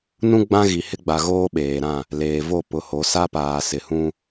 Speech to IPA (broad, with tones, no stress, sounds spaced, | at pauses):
n ũ˦ ɡ͡b ã˦ ɣ i˨ h ɪ˦ ɡ͡b a˨ ɣ oː˦ ɓ eː˨ ɾ ã˦˨ | l eː˨ v o˦˨ p ʊ˨ h o˨˦ s a˦ p aː˨ s ɪ˨ h ũ˦